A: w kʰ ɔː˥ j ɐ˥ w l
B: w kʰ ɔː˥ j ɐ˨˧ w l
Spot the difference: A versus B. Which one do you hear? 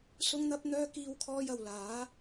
B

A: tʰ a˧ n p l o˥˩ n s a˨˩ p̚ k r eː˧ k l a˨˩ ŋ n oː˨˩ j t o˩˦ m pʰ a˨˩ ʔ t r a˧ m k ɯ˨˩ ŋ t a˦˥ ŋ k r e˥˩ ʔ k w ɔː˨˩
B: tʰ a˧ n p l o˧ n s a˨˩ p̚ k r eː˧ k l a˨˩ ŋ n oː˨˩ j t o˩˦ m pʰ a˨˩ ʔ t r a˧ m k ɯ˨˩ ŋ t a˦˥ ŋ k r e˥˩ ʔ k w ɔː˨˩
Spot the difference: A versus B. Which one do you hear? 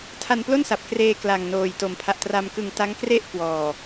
A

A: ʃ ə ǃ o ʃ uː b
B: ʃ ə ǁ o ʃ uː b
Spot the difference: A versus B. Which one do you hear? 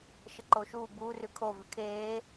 A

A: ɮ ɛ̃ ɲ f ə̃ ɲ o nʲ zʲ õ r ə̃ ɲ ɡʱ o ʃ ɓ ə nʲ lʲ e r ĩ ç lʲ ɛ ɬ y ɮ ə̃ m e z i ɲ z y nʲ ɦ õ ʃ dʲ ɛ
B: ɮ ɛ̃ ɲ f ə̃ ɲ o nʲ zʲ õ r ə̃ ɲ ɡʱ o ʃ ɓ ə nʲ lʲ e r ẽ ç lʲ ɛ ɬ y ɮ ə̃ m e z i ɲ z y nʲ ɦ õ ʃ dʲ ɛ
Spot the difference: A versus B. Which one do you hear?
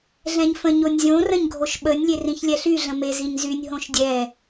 A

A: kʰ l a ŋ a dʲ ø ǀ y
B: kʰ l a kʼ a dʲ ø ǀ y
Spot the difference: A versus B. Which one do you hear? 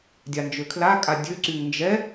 B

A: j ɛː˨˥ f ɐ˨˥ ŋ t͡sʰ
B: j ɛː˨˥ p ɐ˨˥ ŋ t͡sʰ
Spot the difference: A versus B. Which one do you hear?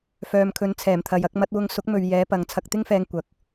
B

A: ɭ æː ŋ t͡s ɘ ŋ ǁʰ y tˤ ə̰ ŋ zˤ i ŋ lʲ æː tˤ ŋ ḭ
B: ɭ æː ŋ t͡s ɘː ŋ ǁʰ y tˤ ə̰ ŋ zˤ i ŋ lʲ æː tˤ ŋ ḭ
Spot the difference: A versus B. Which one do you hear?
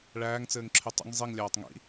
B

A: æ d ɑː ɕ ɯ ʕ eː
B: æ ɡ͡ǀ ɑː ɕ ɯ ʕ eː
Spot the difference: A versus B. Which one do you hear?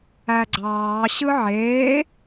B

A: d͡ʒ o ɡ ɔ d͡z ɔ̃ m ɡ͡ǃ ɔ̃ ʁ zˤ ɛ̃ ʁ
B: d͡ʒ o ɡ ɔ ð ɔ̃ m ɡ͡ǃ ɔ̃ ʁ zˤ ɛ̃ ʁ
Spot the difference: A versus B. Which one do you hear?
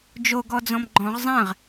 A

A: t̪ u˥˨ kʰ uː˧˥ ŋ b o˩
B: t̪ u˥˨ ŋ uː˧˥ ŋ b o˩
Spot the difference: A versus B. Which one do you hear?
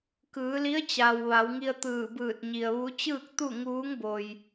B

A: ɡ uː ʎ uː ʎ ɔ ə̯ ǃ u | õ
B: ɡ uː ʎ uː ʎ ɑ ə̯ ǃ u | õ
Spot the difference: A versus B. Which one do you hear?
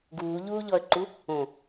A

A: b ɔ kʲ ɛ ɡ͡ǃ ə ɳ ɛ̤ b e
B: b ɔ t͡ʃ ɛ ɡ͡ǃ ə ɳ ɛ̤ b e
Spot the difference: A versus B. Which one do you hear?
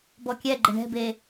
A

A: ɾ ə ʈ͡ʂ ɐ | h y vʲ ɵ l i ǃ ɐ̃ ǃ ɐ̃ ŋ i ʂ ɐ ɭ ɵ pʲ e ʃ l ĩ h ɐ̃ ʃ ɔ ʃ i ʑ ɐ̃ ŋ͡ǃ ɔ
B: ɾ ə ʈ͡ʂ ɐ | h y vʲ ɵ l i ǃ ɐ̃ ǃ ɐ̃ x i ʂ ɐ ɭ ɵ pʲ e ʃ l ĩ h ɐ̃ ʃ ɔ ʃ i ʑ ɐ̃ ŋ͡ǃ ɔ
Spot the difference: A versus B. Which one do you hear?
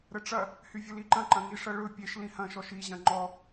A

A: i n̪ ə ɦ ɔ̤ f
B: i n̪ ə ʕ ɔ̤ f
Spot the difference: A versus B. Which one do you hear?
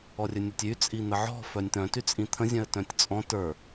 B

